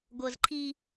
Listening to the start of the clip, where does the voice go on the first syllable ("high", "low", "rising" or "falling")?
high